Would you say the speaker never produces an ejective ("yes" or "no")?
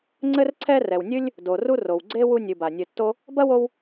yes